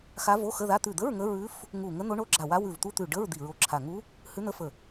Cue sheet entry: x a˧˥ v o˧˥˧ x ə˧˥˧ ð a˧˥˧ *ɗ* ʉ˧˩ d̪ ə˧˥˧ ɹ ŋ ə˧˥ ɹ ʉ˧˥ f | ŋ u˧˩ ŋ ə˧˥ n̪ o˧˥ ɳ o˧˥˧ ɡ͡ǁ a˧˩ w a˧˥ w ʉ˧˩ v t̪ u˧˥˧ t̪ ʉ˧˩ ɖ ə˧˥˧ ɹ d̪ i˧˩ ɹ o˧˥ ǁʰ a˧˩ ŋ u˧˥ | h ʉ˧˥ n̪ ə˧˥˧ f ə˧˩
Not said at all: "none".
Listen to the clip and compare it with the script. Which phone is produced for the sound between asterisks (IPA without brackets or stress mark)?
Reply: t̪